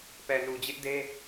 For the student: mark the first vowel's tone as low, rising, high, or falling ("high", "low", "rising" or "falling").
low